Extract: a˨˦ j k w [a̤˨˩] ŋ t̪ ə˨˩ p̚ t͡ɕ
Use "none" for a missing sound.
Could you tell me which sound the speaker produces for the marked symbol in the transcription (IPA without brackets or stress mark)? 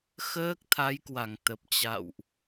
a˧˩